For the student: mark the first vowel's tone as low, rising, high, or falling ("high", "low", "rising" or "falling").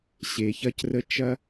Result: low